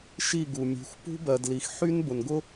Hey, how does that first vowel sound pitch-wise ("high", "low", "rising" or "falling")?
falling